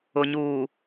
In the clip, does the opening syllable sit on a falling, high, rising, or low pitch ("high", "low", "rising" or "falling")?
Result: low